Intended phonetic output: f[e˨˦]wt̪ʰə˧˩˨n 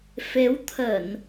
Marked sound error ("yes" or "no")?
no